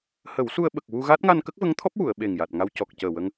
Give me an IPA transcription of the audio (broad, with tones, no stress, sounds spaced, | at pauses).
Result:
h ə˨˩˦ w s u˧ ə̯ ɓ ə˨˩ k̚ w u˧ ɣ a˦˥ t̚ ŋ a˧ n k ə˦˥ k̚ v ə˧˥ ŋ t̪ʰ ɔ˦˥ p̚ w u˨˩˨ ə̯ ɓ e˨˩ ŋ j a˨˩ t̚ ŋ a˧ w c ɔ˨˩ k̚ c əː˨˩ w ə˧ ŋ